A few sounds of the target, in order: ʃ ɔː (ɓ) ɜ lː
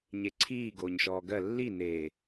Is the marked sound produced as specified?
no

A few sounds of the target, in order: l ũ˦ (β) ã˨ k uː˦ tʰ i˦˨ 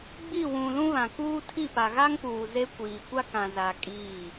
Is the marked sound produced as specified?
yes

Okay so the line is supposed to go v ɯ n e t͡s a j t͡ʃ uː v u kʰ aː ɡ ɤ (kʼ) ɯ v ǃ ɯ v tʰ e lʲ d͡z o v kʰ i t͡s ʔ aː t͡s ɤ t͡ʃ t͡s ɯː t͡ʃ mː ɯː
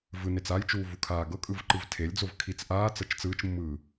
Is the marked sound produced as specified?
yes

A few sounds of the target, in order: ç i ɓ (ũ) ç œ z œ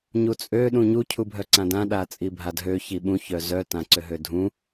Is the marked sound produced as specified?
yes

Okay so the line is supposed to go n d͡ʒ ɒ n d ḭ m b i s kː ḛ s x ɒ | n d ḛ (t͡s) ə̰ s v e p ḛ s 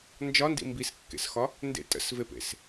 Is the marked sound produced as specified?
no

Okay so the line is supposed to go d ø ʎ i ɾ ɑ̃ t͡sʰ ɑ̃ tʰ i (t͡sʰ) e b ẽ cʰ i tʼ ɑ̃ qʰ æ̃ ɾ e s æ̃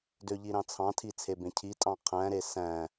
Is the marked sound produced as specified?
yes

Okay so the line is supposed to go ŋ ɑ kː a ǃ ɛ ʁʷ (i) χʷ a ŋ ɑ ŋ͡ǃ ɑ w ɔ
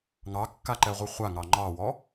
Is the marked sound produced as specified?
yes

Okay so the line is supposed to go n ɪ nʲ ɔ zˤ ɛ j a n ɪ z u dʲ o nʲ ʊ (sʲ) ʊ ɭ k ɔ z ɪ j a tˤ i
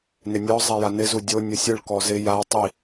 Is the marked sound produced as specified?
yes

